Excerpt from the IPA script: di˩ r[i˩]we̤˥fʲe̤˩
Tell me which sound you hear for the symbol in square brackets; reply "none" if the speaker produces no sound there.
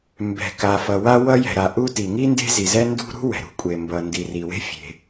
i˩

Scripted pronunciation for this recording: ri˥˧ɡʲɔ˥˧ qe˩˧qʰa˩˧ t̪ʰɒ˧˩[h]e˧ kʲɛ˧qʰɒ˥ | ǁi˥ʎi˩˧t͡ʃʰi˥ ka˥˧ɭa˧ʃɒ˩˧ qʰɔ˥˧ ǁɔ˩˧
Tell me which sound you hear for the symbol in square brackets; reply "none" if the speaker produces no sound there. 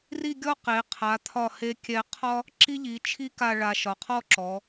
h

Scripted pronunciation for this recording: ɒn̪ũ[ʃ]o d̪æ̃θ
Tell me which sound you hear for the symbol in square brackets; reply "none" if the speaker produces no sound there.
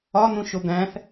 ʃ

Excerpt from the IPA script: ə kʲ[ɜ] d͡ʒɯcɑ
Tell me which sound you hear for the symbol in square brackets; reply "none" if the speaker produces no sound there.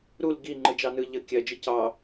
ɜ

